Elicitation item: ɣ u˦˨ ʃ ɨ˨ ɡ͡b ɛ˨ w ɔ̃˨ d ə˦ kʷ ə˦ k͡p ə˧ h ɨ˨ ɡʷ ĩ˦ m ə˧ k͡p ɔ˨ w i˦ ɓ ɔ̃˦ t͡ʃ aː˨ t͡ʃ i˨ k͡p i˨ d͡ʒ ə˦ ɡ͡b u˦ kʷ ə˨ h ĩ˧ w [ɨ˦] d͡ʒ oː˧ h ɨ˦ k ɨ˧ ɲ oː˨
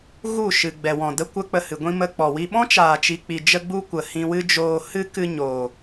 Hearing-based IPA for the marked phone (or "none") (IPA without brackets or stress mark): ɨ˦